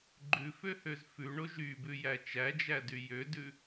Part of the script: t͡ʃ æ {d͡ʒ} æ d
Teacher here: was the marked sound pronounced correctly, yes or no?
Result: yes